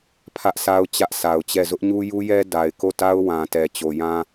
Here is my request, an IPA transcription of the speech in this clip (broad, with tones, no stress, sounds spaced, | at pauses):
pʰ ä˦ ʔ s a˦ ʊ̯ t͡ɕ ä˦ ʔ sʰ a˨ ʊ̯ t͡ɕ ɛ˦˨ z ʊ˦ ʔ ɲ u˦ j u˦ j ɛ˦ d a˨ ɪ̯ k o˦˨ t a˦ ʊ̯ w ã˨ t ɛ˨ t͡ɕ o˨ j ã˦